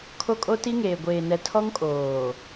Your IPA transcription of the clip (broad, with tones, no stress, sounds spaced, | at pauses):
kʰ o˦ kʼ o˦ t i˦ ŋ eː˨ ɡʷ eː˨ n ɛ˨ tʰ ɔ˦ ŋ kʼ oː˨